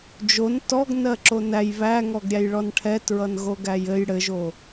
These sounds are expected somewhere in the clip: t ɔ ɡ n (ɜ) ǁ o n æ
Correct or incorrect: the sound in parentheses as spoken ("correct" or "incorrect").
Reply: correct